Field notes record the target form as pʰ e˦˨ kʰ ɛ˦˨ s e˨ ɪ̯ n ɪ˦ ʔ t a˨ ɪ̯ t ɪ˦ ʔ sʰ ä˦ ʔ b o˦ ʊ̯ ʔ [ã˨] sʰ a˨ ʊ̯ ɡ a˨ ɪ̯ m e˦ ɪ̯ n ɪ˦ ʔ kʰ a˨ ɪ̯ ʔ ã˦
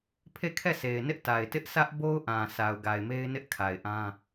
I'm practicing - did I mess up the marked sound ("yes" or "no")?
no